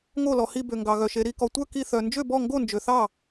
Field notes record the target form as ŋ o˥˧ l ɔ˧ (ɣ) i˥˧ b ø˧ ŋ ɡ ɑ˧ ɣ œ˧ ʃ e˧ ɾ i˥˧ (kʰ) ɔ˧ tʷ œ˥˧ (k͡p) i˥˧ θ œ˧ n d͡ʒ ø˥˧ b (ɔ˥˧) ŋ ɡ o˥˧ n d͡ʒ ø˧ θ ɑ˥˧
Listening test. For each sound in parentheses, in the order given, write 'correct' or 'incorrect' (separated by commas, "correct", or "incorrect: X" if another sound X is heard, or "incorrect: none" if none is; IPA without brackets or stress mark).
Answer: incorrect: h, incorrect: k, incorrect: k, correct